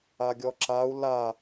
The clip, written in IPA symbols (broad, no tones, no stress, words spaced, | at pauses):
aɡʲɔǁau̯ la